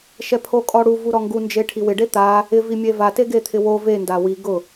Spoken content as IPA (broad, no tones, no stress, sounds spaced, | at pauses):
ʃ ɛ pʰ o kʼ ɔ ɽ u v u ɾ ɔ ŋ ɡ u n d͡ʒ e ʈʰ i w ɪ ɖ e t̪ a | ɪ v i mʲ e v a t e ɡ e t̪ʰ ɪ w o v e n d a w i ɡ ʊ